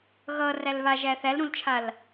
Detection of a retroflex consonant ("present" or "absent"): absent